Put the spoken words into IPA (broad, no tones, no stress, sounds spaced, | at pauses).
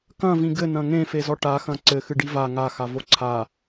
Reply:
k ɐ̃ v ĩ ɡ ɘ n ɐ̃ ŋ ẽ f e z ɔ ʈ a x ɐ̃ ǀ ɘ x ɨ ɖ i v a ŋ a x a v o ǀʰ a